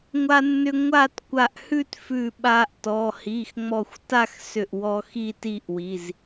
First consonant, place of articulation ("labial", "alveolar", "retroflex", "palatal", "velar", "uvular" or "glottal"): velar